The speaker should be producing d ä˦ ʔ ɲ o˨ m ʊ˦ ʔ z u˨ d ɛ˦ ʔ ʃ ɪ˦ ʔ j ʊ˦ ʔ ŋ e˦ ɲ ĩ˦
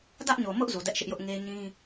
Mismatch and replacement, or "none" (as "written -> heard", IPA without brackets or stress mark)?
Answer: none